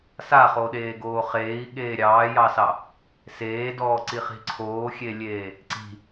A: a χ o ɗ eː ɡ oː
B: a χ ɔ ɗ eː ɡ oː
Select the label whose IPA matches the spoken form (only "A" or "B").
A